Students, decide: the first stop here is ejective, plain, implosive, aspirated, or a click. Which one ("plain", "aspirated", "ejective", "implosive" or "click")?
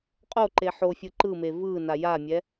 ejective